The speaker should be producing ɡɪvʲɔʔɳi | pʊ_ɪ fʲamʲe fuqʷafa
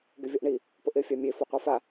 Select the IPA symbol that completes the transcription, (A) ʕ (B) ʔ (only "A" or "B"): B